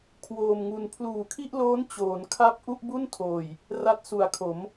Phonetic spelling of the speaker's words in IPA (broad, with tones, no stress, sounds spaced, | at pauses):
kʰ w oː˧ m ŋ u˧ n pʰ l uː˨˩ kʰ i˥˩ ʔ l oː˦˥ n t͡ɕ oː˩˦ n kʰ a˥˩ p̚ ʔ u˥˩ ʔ b u˥˩ n tʰ oː˨˩ j | r a˦˥ t̚ s u˨˩ a̯ kʰ o˩˦ m